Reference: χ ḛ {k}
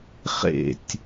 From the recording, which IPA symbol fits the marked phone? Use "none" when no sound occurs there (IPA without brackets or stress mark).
tʲ